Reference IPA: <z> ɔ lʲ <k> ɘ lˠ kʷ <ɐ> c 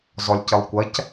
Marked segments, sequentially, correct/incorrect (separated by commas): correct, incorrect, correct